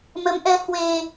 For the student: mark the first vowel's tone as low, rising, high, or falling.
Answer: rising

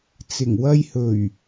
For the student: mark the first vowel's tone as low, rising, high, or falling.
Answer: low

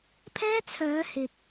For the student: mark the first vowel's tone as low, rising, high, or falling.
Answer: high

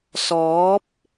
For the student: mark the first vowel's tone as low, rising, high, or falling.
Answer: rising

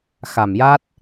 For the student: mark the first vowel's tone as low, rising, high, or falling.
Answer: low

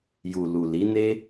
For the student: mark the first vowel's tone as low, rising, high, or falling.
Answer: low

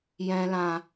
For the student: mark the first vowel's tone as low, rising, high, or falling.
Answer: low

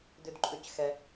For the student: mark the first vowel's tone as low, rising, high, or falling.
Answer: low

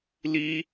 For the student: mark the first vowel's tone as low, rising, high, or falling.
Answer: high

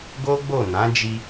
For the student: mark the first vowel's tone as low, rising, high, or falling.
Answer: high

